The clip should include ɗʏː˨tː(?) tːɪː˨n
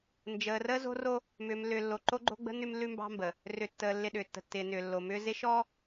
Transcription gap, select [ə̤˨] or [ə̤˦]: ə̤˦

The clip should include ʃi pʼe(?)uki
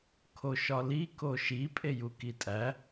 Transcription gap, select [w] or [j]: j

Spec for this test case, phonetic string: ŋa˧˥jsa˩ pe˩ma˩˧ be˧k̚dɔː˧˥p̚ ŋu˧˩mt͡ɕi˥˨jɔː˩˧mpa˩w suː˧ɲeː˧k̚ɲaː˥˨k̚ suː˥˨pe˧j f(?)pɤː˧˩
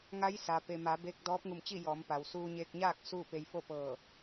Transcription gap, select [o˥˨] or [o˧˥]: o˥˨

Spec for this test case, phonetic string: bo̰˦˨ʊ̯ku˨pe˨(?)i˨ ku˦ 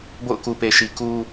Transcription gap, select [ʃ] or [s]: ʃ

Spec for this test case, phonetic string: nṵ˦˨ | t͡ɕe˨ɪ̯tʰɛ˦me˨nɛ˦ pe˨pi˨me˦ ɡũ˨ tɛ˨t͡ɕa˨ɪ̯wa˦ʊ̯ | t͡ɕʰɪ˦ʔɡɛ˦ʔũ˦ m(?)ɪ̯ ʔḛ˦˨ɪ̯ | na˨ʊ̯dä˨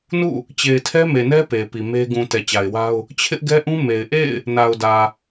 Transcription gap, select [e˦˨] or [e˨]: e˨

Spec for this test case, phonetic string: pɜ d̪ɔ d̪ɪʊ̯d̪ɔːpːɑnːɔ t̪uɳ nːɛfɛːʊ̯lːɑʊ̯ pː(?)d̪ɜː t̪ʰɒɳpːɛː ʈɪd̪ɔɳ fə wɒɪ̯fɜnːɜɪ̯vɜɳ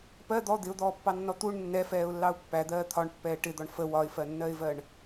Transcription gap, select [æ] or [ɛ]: æ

